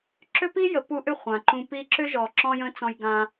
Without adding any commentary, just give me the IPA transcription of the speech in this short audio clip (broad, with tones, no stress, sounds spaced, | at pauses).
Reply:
ǁ ʏ˦ p i˦ j ə˨ p u˧ ʔ ʏ˦˨ χʷ ã˨ ǃ ũ˧ p i˧ ǁ ʏ˦ ʒ ɔ˨ ǁ ɔ̃˦ j ə̃˦ t͡s ɔ̃˧ j ɡ ã˧